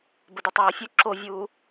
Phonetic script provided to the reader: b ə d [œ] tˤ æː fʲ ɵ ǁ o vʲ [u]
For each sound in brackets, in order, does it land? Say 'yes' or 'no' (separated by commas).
no, no